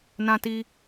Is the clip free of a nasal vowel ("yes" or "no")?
no